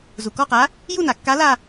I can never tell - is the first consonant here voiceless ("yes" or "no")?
no